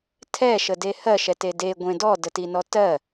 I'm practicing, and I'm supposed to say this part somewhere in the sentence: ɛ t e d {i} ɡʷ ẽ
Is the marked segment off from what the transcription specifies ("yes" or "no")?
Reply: yes